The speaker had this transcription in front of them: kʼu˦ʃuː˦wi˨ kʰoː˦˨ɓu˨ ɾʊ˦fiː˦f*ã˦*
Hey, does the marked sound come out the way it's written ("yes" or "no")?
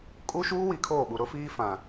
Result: no